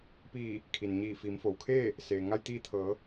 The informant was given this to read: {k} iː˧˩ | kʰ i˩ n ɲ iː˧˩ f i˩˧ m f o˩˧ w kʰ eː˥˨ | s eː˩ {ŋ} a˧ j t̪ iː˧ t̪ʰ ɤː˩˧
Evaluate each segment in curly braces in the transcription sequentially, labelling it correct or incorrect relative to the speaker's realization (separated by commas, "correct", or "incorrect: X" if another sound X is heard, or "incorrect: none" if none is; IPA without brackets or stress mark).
incorrect: p, correct